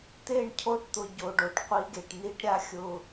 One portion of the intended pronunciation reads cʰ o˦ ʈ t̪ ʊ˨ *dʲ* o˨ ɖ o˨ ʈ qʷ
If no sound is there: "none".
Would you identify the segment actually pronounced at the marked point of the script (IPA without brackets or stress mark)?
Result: ɟ